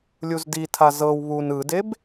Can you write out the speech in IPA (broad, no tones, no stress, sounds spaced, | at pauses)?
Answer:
lʲ u z d i tʰ a z ɤ w β u n ɯ d e b